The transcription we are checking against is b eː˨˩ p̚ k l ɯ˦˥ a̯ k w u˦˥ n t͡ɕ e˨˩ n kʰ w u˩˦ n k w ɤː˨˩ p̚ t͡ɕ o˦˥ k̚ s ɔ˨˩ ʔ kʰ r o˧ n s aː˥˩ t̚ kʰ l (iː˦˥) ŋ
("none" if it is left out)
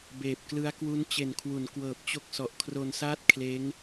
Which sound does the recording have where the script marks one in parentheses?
eː˦˥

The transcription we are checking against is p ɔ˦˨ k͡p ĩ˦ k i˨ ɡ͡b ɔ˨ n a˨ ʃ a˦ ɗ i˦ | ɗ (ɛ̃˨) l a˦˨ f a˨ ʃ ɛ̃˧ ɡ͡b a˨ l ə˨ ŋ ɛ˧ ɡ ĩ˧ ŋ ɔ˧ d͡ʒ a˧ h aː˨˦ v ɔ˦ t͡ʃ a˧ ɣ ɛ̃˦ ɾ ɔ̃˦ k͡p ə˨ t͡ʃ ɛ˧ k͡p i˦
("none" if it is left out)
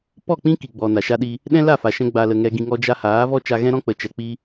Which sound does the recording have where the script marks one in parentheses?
ɛ̃˦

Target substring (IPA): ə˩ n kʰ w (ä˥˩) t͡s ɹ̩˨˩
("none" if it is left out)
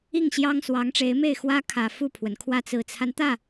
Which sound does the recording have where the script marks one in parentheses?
ä˥˩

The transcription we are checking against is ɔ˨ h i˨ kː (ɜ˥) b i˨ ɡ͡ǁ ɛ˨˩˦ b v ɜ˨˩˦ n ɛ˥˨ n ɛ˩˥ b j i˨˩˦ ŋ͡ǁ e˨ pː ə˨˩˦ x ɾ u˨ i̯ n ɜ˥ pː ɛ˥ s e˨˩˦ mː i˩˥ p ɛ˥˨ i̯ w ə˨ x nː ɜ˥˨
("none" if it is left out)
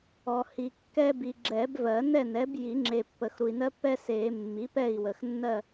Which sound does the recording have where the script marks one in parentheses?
ɛ˥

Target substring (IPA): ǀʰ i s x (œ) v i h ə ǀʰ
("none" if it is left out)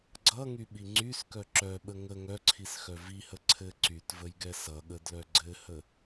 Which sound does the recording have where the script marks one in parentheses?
œ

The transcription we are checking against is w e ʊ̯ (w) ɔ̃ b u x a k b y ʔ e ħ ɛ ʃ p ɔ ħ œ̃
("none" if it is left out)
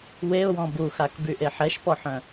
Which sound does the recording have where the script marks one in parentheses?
w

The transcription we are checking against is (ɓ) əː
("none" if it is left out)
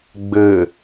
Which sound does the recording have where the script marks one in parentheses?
ɡ͡b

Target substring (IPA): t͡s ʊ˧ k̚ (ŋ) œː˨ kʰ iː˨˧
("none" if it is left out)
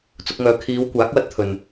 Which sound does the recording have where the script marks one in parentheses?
ŋ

